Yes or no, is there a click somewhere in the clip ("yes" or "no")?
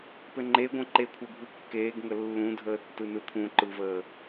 yes